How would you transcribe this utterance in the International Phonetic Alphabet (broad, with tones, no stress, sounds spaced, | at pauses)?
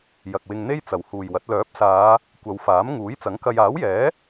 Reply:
j ɐ˨ k̚ w ɪ˧ ŋ n̪ e˥ j t͡s ɐ˨˩ w h uː˨ j w ɐ˨˥ t̚ l œː˨˥ p̚ s aː˨˧ | kʷ ɐ˨˧ w f aː˨˥ m ŋ uː˨˥ j t͡s ɐ˨˥ ŋ k ɐ˧ j aː˨˥ w j ɛː˨˥